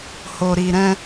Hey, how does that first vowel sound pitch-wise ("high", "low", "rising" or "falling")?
low